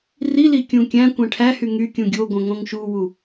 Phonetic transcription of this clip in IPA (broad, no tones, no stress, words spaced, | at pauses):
rili kʲũkʲæ̃kʷɛ̃ ʈʰæhy ŋykʲũ ɡʲoɡʷœ̃ ŋõŋʃuwu